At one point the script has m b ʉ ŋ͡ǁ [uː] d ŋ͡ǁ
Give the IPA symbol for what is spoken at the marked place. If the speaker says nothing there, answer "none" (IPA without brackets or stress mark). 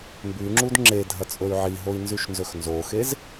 u